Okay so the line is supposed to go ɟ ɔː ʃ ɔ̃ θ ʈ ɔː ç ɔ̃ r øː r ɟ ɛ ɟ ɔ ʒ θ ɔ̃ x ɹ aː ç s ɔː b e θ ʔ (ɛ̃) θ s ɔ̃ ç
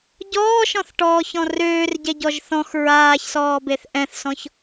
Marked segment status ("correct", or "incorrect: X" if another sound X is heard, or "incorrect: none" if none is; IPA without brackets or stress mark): correct